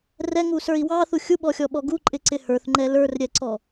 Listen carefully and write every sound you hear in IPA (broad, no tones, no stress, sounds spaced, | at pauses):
r ɛ ŋ u s ə˞ i̯ w ɑ θ u xʲ u ɓ ɔ xʲ ɔ ɓ ɔ ɡ u ǃʼ ɪ ǀ ɪ h ə˞ θ ŋ͡ǃ ɛ l ə˞ r ɾʲ ɛ ǀ ɔ